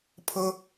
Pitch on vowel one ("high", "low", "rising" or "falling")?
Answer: high